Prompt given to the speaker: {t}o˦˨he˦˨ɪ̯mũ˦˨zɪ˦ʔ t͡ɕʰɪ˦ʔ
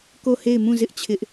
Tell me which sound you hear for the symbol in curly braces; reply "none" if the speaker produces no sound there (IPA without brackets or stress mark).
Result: k